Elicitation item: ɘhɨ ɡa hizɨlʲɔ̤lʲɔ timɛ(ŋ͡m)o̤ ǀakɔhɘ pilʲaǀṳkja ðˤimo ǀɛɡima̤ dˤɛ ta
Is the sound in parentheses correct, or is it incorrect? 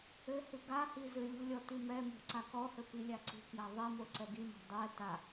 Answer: incorrect